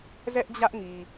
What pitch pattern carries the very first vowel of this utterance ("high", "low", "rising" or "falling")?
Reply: high